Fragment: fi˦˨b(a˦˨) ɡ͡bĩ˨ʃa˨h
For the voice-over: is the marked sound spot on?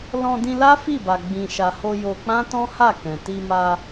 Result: no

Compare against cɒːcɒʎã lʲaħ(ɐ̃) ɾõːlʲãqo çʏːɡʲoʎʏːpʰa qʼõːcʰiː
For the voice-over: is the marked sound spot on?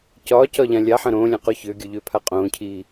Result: yes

